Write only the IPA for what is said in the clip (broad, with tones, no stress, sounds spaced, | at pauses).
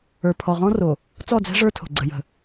ə˞˨ pʰ ɔ˨ ʁ ɔ̃˦ r o˨ | t͡s ɔ˦˨ d͡z ɛ̤˦ ʐ ə˞˦ tʰ o̤˨ ɡ͡ǀ ə˨ j ə̤˨